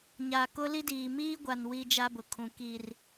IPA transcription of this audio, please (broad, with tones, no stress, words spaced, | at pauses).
ɲa˨ kʊ˦li˦diː˨ miː˦ɡʷa˨n wiː˦d͡ʒa˦bʊ˨kʰũ˨ ki˨r